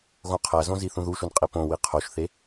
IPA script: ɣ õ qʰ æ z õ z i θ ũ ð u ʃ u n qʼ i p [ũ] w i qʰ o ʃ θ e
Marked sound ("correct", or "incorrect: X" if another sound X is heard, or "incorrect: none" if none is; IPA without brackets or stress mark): incorrect: õ